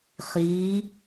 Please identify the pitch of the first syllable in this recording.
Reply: rising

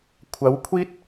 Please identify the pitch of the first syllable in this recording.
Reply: rising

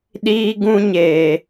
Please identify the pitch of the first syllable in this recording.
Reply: high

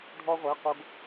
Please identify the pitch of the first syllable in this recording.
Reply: high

